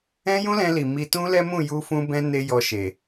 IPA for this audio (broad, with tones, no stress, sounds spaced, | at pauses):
ɛ̃˦ j ũ˦ l ɛ̃˧ l i˨ m i˧ t ũ˦ l ɛ˦ m ũ˦˨ j u˧ f ũ˧ b ɛ̃˧ n e˦ j ɔ˧ ʃ e˨